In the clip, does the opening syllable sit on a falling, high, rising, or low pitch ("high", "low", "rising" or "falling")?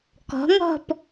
rising